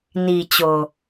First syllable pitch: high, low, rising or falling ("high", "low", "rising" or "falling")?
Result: low